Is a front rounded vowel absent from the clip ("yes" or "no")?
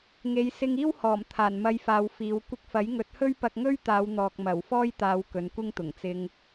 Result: yes